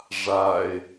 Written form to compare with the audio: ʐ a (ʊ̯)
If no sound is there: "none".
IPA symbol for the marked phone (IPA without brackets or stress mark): ɪ̯